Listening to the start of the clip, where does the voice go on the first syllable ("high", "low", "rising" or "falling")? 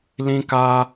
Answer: high